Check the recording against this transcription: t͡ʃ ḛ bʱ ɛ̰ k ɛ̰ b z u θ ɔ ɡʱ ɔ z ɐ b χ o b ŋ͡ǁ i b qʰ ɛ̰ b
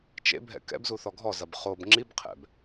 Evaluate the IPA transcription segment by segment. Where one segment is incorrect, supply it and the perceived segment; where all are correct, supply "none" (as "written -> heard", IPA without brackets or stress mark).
none